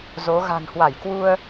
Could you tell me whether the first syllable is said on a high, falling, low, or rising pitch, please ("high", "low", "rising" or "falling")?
rising